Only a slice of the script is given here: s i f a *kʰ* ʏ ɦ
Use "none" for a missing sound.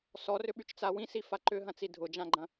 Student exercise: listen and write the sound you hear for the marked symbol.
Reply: ǃ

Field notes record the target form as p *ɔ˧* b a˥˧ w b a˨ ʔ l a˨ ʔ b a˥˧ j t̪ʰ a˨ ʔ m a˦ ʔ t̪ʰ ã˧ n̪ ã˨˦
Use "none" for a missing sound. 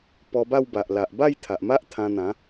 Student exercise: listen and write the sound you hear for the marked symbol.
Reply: ɔ˧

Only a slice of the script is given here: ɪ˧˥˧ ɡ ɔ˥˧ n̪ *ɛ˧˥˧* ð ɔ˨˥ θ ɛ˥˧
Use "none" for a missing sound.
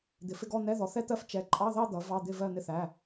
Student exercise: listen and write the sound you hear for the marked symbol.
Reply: ɛ˧˥˧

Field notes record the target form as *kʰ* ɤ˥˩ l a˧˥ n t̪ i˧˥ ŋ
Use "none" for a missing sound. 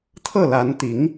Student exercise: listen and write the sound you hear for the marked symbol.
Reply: t̪ʰ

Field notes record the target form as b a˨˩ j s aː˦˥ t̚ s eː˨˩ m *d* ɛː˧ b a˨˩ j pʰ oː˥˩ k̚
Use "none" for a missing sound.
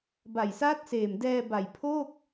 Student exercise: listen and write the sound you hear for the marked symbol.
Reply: d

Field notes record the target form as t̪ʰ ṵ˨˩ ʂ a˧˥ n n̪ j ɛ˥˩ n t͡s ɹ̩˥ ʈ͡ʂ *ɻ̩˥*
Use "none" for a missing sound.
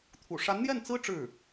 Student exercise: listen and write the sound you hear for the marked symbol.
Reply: ɻ̩˥˩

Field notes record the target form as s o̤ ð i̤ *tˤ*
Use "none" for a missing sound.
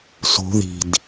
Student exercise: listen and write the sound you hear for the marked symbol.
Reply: d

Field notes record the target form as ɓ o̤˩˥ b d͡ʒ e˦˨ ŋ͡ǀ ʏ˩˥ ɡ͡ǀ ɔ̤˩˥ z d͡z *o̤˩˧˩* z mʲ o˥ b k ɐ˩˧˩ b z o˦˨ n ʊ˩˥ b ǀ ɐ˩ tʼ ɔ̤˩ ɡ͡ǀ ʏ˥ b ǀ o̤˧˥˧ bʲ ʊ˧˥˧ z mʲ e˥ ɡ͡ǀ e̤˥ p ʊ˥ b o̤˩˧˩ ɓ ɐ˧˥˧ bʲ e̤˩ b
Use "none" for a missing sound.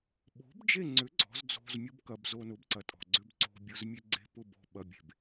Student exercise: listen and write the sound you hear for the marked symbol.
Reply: o̤˧˥˧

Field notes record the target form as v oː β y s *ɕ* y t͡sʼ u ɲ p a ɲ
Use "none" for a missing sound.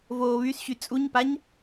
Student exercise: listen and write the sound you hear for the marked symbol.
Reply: ɕ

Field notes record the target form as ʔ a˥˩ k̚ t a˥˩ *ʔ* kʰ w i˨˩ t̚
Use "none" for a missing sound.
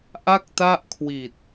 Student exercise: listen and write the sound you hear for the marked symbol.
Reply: ʔ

